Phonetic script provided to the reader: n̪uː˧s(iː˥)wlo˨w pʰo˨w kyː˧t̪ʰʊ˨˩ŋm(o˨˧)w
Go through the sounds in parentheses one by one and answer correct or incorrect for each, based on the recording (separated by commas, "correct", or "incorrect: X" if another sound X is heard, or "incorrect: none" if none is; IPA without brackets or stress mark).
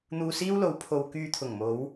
correct, correct